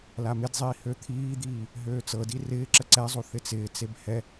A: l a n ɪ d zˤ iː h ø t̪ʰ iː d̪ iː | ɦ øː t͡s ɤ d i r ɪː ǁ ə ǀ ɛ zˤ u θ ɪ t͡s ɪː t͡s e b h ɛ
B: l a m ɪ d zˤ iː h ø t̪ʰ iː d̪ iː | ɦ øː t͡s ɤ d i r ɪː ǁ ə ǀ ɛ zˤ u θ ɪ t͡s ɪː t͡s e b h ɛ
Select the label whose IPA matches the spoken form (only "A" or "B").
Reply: B